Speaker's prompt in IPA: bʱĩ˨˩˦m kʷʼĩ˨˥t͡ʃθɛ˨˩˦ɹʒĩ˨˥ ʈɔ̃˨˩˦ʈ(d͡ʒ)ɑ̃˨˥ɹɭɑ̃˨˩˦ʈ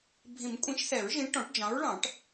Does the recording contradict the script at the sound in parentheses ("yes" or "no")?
no